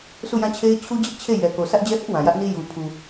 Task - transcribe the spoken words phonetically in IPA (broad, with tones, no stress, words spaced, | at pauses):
sʰu˦˨jã˦˨t͡ɕʰe˦ɪ̯ t͡ɕʰu˦d͡ʑɪ˦ʔt͡ɕʰe˦˨ jɛ˨ko˨ sä˦ʔd͡ʑɛ˦hɪ˦ʔ wã˨jä˦ʔni˦ ju˨pʰu˨